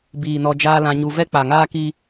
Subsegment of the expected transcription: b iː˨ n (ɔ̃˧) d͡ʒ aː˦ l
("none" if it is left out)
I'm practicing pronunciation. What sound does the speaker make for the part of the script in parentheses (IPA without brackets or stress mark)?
ɔ˧